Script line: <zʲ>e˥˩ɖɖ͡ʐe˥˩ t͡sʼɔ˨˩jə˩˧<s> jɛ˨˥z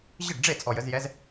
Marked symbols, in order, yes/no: no, no

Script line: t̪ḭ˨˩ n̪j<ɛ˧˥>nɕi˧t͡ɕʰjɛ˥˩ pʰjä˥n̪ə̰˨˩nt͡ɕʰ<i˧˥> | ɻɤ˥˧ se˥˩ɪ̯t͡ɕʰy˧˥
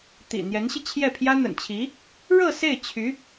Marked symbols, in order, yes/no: yes, yes

